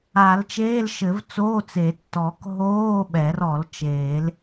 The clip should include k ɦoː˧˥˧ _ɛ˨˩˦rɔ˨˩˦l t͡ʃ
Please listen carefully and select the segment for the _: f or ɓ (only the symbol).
ɓ